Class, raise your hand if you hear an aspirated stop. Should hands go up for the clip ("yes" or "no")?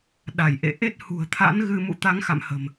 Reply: yes